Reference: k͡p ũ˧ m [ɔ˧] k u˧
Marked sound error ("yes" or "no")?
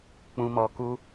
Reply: no